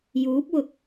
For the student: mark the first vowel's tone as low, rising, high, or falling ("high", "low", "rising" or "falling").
rising